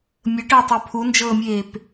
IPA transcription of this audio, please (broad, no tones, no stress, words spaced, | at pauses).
mʲəʈəːtˤœ pʰund͡ʒɤːmʲeːp